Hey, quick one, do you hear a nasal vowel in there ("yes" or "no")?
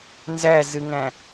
yes